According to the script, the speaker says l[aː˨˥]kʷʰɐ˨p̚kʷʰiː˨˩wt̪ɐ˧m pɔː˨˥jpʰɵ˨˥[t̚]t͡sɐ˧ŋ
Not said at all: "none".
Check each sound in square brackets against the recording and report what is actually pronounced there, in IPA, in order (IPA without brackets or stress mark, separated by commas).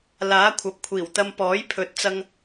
aː˨˥, t̚